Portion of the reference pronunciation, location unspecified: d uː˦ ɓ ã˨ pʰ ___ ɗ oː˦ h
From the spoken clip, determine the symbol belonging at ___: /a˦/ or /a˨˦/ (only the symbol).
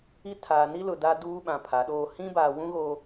a˨˦